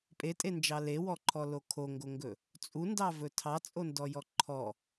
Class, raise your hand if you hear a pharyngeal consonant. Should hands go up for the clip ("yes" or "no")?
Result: no